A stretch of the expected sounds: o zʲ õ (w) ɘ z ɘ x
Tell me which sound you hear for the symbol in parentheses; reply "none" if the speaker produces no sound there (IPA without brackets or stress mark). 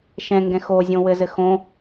w